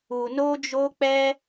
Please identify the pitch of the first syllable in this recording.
low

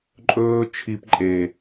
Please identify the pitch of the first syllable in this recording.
high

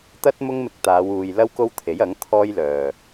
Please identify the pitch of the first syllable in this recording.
high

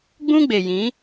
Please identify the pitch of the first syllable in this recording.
high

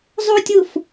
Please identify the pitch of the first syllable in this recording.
high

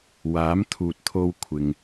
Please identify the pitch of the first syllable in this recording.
rising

